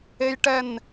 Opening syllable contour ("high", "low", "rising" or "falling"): high